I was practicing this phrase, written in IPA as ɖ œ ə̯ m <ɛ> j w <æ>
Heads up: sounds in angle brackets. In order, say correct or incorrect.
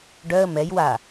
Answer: correct, incorrect

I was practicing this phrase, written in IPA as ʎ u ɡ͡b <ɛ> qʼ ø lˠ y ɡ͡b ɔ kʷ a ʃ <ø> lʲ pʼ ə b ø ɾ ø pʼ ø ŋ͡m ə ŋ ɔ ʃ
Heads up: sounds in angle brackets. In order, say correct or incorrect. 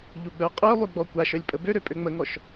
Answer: incorrect, incorrect

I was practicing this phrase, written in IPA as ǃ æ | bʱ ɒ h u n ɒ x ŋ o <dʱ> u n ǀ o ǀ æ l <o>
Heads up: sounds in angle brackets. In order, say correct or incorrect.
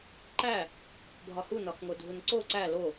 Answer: correct, correct

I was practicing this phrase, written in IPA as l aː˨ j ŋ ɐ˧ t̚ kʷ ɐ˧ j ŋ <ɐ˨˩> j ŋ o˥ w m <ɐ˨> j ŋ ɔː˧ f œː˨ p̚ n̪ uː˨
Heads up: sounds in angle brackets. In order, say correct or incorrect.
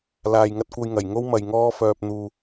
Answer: correct, correct

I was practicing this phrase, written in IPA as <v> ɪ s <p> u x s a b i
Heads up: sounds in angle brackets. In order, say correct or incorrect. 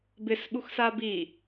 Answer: incorrect, incorrect

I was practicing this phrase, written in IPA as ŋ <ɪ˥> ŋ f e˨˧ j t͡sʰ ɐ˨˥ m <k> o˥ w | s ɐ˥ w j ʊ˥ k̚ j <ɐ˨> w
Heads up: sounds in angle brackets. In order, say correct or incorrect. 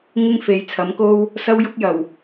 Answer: correct, correct, incorrect

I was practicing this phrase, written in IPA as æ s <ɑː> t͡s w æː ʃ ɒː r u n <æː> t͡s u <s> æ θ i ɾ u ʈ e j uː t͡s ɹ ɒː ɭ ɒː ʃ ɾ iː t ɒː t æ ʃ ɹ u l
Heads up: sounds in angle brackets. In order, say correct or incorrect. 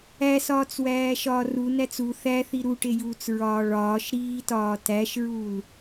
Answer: incorrect, incorrect, incorrect

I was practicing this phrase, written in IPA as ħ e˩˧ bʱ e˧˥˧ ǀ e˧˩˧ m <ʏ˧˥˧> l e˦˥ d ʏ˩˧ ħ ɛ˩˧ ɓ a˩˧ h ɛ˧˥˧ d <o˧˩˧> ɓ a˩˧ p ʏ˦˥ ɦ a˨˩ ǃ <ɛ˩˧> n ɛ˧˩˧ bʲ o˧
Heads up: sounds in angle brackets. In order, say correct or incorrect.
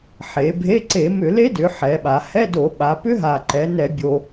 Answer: incorrect, correct, correct

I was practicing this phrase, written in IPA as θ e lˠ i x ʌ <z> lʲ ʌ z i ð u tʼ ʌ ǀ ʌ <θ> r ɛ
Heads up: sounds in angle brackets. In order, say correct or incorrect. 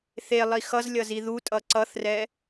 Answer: correct, correct

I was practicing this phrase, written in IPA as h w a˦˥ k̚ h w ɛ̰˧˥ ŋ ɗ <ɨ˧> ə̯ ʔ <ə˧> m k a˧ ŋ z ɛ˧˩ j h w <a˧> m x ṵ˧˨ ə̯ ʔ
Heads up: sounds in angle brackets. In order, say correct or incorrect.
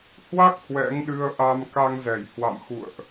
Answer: correct, incorrect, incorrect

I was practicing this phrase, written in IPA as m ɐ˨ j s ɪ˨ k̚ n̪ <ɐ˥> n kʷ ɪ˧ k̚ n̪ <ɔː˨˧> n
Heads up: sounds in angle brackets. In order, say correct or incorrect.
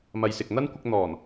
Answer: correct, incorrect

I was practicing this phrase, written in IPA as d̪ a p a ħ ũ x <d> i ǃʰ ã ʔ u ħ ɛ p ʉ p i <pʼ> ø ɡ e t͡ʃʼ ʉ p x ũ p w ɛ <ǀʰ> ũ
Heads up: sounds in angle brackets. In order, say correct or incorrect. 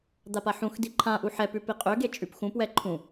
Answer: correct, incorrect, incorrect

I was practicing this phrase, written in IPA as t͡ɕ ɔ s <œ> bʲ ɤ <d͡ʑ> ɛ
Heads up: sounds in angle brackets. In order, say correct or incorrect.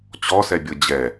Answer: incorrect, correct

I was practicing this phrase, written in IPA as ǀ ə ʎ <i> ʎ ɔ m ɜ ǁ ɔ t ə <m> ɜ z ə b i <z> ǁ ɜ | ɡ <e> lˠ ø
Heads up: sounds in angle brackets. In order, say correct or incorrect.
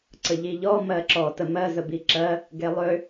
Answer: correct, correct, incorrect, correct

